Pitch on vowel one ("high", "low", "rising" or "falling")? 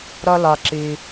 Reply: high